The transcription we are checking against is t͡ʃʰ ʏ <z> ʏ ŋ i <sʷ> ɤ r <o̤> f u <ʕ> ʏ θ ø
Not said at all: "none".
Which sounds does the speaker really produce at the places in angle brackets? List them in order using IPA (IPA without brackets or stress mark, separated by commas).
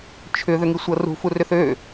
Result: ð, sʷ, ṳ, r